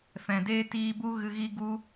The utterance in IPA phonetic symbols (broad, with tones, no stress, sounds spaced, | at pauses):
f ɛ̃˨ d eː˦ t iː˧ b u˦ ɣ ɨ˧ ɣ i˦ ɡ u˧